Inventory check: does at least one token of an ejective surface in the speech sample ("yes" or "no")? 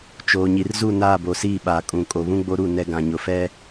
yes